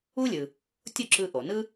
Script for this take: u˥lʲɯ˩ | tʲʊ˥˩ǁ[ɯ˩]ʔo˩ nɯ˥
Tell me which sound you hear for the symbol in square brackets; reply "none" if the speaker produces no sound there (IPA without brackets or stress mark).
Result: ɯ˧